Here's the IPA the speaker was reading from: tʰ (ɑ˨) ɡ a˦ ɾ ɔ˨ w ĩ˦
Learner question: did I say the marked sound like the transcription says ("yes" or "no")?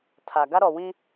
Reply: no